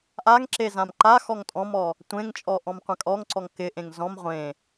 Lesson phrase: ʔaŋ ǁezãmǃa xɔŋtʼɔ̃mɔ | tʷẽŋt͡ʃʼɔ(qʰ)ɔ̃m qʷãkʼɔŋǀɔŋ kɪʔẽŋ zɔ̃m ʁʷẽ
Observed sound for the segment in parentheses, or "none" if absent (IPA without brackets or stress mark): ʔ